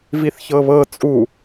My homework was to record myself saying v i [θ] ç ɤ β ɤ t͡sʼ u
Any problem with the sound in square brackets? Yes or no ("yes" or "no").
no